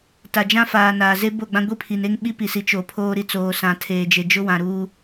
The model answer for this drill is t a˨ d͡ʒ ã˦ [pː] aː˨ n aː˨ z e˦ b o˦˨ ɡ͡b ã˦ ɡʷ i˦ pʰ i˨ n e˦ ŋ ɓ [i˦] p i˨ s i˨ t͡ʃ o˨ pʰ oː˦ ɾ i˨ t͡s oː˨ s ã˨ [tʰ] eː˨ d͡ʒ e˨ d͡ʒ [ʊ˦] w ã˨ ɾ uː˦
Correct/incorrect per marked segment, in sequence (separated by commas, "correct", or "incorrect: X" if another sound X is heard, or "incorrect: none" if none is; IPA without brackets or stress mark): incorrect: f, correct, correct, correct